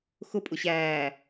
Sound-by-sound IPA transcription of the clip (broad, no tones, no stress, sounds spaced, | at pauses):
x ʊ pʼ ʊ ɕ æː